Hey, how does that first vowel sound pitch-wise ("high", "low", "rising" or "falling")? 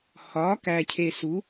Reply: rising